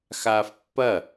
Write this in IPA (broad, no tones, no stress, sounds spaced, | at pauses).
x aː f pː ɐ